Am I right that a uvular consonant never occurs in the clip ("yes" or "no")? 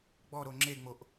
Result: yes